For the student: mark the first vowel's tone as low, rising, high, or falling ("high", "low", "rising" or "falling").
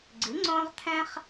rising